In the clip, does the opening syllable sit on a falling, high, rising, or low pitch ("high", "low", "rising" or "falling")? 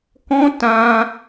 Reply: high